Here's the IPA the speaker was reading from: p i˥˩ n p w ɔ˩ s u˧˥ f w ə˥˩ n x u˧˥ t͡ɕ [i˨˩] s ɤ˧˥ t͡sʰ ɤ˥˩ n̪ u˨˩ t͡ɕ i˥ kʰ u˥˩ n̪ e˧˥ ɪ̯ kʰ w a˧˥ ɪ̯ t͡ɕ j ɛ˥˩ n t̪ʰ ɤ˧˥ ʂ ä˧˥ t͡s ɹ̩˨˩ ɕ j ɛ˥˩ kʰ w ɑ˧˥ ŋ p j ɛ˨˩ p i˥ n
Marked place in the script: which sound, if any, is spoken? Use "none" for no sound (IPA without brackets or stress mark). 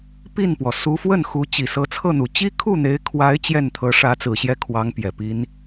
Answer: i˨˩